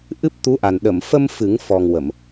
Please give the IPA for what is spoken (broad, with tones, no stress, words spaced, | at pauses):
ʔɨ˦˥p̚t̪u˧˥ʔa˨˩n ɗə˨˩˨m fə˧m fɨ˨˩˦ŋ fɔ˨˩ŋ wə˨˩˨m